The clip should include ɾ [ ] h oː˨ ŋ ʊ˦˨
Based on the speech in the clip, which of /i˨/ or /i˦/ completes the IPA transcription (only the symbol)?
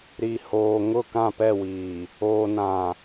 i˨